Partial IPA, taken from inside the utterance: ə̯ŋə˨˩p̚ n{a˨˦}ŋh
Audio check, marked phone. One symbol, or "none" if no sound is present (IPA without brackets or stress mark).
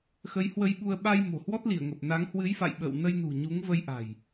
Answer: a˨˦